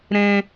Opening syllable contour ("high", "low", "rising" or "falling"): high